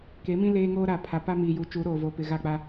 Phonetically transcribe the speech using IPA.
k e˨˦ m ĩ˦ l eː˦ ŋ oː˦ ɾ a˨ pʰ a˨ p a˦ m iː˨ j uː˨ t͡ʃ uː˨˦ ɾ oː˨ v oː˨ p ɪ˨ ɣ a˦˨ k͡p a˦

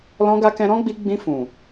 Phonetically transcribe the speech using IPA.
l ɔ̃˧ ɡ a˧ k ɛ̃˧ ɾ ɔ̃˦ ɡ͡b i˧ ɡ͡b ĩ˧ f ũ˨

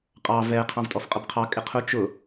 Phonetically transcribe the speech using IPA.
qʼ ɑ v ɛ qʰ ɑ̃ v tʼ ɔ f qʼ ʌ b qʰ ɑ kʼ ɪ qʰ ʊ t͡ʃ ʊ

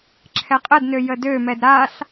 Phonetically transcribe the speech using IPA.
ǁʰ ɛ qʼ ə d n ø j ə d ø m ɛ d ɾ a ɬ

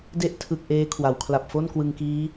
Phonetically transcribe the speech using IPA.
d e˦˥ ʔ tʰ ɯ˨˩ k̚ ʔ eː˦˥ kʰ w a˩˦ w kʰ l a˨˩ p̚ f o˥˩ n k w ɯ˧ ŋ k iː˦˥

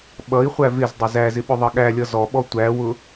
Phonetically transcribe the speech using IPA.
ɓ ʌ i̯ χʷ æ v ɪ z dˤ ɪ z æ z ɪ ɓ ʊ ðˤ ʌ ɠ æ lʲ ʌ z ɔ ɓ ɔ tʷ æ w ʊ

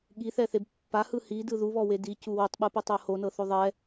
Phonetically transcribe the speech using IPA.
ɠ i θ ɛ θ e b pː a h ɯ h i d ɯ ð u β ɔ w e d i c u w u tˤ ɓ ɯ p ɛ tˤ ɤ h o n ɤ θ o ðˤ ɛ

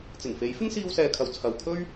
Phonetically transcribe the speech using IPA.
t͡s ɪ˨˩ ŋ f e˨˥ j f ɪ˥ ŋ s iː˧ w s ɛː˨ kʰ ɐ˨ w t͡sʰ ɐ˨˧ w kʰ ɵ˥ ɥ

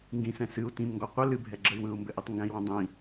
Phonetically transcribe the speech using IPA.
ŋ ɡ ĩ s ɛ̃ s ɨ u̯ t ĩ m ŋ ɡ ɔ qʷ ɘ l ɨ bʱ ɛ ɡ͡ǁ ə y̯ w ɯ u̯ m b ɘ ʔ i tˤ ŋ ɡ ɛ̃ i̯ w õ dˤ ĩ

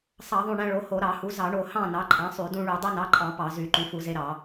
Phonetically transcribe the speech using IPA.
sˤ ɑ˧˩˧ ðˤ ũ˧˩ ɳ æ̃˦ ɭ o˩˥ h o˧˩˧ ɾ ɑ˧˩˧ h u˩˥ z ɑ˧˩˧ ɳ o˧˩ h ɑ̃˥˨ n ɑ˩˥ ǃʼ æ̃˩˥ sˤ y˧˩˧ d ũ˦ ɭ y˧˩˧ dˤ o˦ n ɑ˩˥ ǃʼ ɑ̃˧˩˧ p ɑ˧˩˧ z y˧˩˧ ǃ y˩˥ f u˧˩˧ z e˦ ɾ ɑ˧˩˧

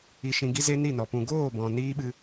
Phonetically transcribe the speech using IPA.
i˧ ʃ ĩ˧ ɡ i˦ z e˦ n i˦˨ n ɔ˨ p ũ˨ ɡ oː˦˨ b ɔ̃˨ n iː˦ ɓ ɨ˧

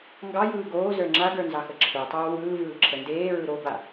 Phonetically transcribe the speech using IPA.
ŋ ɡ ɑ j ɯː ɡ oː z ə˞ ŋ͡ǁ a ɡ ə˞ n z ɑ x ə ǁʰ ə˞ tˤ oː w ɯː v ɯː ǁʰ ə n d eː ɹ ɯ ɾ o b a

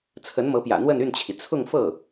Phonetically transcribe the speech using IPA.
t͡sʰ ə˧˥ n m ɤ˧˥ p j ä̰˨˩ n̪ w ə˥˧ n y˥˩ n t͡ɕʰ i˩ t͡sʰ ʊ˥˧ ŋ f ɤ˥˩

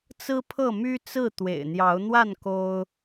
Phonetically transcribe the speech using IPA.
t͡s ɹ̩˦ pʰ ɤ˥˨ m y˦ t͡s ɹ̩˥˨ t̪ w ḛ˨˩ ɪ̯ n̪ j ɑ˨˦ ʊ̯ n̪ w a˥˨ n k o˦ ʊ̯

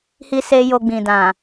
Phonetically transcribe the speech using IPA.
h i˦ s e˦ j o˧ ɡ͡b ĩ˨ d ã˨

